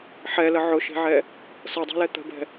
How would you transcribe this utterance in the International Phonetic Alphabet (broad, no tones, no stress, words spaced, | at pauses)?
ħɛlə ʕʊʃe̤ʕɛ | sɤdˤɛ̤lɛ t̪ə̤bɛ̤